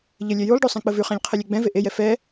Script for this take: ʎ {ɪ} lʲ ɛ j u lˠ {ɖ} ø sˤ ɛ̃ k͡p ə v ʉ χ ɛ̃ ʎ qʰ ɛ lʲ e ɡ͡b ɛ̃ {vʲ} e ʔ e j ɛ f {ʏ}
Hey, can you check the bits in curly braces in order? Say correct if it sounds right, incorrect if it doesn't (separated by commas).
incorrect, correct, incorrect, incorrect